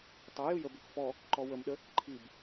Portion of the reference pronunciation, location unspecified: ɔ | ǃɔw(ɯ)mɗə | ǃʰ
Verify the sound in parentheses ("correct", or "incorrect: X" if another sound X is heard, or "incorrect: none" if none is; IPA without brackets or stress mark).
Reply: incorrect: ə